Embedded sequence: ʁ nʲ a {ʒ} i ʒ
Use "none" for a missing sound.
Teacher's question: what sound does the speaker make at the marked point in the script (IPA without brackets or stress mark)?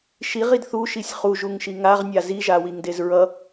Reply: z